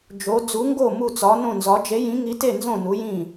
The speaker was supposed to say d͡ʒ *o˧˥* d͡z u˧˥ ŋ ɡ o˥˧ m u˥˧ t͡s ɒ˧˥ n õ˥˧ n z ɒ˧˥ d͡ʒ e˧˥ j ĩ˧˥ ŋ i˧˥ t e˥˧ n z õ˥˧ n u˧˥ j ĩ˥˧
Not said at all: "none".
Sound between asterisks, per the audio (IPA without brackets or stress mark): o˧˥